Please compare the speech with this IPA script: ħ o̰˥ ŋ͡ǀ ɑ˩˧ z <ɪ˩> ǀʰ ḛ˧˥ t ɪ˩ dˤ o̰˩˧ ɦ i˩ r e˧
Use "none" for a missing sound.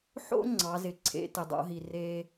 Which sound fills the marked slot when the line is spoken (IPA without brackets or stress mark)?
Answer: ɪ˩